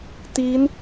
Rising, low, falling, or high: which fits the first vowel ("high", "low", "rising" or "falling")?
rising